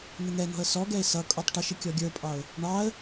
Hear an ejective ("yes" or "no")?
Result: yes